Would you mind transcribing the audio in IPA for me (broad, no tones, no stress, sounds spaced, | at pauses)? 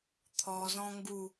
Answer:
t̪ʰ ɔ z ɔ̃ ŋ ɡ u